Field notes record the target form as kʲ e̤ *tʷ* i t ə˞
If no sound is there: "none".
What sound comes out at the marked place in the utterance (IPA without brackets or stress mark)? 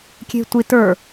tʷ